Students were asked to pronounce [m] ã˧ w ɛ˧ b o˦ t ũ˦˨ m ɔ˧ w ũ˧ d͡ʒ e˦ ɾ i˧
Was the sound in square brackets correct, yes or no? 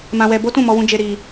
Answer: yes